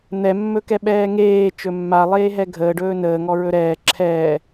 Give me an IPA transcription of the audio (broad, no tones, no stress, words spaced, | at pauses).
n̪ɛmːɵkɛ ɓɛːŋeː t͡ʃɵmːa lˠeːɦɛɡʱəːɖɵː nəːŋɔ ɹɵɾɛː ǁʰɛː